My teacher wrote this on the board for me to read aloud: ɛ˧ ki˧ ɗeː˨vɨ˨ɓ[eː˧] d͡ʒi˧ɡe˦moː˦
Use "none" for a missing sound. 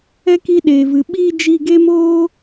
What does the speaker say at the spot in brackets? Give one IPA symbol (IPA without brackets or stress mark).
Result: iː˧